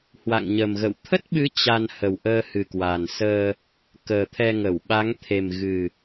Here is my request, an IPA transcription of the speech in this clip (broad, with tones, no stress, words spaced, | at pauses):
hwa̰˧˨ŋɲə˨˩mɣə̰˧˨w t̪ʰə˦˥t̚ɓɨ˨˦ t͡ɕa˧nhə˨˩wʔəː˧ hɨ˨˩kwa˨˩n səː˧ | kəː˨˩t̪ʰɛ˧ŋə˧˩w ɓa˨˦ŋt̪ʰe˨˩mɣɨ˨˩